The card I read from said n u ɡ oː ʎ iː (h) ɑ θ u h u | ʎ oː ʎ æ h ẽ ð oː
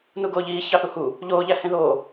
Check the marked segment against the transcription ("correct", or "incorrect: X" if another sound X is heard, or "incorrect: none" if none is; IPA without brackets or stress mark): incorrect: ç